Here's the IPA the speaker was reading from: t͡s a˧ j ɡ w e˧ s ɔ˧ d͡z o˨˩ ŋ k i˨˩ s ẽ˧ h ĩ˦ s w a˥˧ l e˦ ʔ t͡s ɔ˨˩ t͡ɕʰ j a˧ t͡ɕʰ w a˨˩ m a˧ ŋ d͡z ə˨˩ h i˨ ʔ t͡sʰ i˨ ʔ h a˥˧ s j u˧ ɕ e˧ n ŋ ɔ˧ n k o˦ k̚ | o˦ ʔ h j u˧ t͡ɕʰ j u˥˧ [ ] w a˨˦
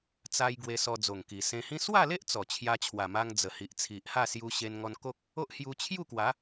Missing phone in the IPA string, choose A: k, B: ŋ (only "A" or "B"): A